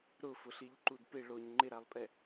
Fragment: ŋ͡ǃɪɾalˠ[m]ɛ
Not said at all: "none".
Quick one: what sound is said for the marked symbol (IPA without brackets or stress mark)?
pʼ